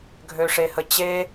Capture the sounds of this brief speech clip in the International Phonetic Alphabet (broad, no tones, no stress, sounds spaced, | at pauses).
ɡʱ ø ʂ e h ə t͡ɕ e